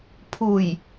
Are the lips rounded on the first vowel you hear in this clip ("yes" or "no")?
yes